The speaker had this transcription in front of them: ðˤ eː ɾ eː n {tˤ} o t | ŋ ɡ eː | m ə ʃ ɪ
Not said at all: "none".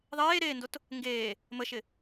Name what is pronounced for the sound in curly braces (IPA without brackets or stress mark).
d